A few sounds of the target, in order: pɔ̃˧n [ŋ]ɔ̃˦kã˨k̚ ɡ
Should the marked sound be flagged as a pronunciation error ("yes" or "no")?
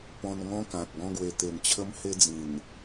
no